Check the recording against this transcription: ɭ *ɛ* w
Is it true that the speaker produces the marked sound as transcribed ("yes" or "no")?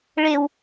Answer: no